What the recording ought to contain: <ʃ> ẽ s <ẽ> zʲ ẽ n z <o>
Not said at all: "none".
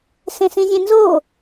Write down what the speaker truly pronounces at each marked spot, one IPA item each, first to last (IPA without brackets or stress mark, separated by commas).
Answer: s, ĩ, o